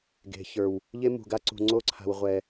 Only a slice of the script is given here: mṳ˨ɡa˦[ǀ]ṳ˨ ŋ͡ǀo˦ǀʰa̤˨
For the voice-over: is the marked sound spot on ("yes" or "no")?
yes